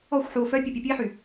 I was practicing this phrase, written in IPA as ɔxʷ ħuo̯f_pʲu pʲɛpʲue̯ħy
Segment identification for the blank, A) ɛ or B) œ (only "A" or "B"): B